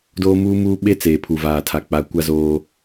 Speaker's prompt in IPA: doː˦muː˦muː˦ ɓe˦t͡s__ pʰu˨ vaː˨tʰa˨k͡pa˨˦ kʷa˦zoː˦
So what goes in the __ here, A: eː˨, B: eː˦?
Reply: A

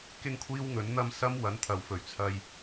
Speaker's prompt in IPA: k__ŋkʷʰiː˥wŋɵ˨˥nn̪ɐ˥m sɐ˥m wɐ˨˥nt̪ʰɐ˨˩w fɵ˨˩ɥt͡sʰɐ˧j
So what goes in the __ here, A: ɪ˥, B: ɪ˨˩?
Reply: A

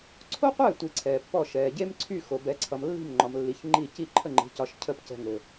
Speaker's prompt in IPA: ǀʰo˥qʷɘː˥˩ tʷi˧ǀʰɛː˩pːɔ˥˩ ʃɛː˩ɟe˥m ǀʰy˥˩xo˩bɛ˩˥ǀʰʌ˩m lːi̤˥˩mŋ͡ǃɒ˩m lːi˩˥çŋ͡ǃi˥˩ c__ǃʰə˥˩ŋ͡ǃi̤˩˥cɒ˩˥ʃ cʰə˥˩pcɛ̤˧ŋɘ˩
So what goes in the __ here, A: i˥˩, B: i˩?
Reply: A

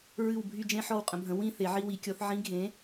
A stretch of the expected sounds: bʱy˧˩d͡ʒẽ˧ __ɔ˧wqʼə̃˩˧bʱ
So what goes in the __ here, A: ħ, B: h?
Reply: A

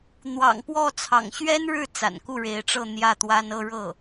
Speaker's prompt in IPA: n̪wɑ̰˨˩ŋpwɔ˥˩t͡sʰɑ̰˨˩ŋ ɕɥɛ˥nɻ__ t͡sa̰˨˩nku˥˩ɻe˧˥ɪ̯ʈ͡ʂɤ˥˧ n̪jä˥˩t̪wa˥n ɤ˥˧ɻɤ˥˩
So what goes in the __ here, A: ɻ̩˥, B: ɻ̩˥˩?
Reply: B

